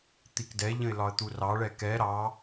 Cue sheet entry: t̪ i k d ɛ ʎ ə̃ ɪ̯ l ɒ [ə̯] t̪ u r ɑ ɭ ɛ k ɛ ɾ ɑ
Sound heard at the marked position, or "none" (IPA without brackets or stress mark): ə̯